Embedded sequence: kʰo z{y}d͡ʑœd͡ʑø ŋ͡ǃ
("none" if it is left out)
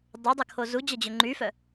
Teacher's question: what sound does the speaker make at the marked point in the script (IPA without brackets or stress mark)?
u